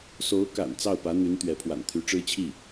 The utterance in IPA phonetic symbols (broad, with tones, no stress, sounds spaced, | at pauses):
s o˧˥ ʊ̯ k a̰˨˩ n t͡s ɑ˥˩ ʊ̯ p ä˧˥ n̪ y˧˥ n t̪ ɥ ɛ˧˥ pʰ w a̰˨˩ n t̪ʰ y˧˥ ʈ͡ʂ ɻ̩˥ t͡ɕʰ i˥˩